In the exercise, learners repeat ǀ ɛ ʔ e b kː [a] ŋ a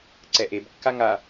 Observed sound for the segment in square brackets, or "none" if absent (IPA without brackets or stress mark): a